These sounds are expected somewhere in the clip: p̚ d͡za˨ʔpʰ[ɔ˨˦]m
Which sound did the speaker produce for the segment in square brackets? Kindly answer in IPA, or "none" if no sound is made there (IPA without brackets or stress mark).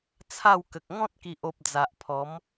ɔ˨˦